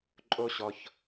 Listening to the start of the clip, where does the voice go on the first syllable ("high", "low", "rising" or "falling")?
high